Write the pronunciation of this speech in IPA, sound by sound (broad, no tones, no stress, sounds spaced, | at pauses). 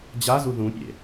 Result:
d͡ʑ a z u ð ũ pʲ ḛ